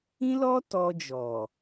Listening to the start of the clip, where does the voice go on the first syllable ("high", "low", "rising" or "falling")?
high